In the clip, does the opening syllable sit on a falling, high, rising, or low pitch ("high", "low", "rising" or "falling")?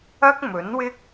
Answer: high